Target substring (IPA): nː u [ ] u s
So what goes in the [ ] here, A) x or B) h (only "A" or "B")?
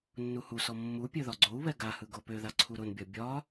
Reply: B